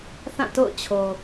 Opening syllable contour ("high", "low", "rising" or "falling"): falling